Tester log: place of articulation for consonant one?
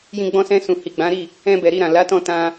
palatal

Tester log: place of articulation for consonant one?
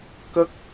velar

